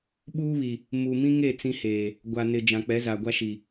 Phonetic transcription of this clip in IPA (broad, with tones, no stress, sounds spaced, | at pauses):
ɓ uː˦ β i˨ | m u˨ m ĩ˦ ŋ e˦˨ t͡s ĩ˦ h eː˨ | ɡʷ a˨ n ɪ˨ d͡ʒ ã˨ k͡p ɛ˨˦ z a˨ ɡʷ a˦ ʃ i˨